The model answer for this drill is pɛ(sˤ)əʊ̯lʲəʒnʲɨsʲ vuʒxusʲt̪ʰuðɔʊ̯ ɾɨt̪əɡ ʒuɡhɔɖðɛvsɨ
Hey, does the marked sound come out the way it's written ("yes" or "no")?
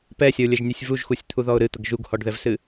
no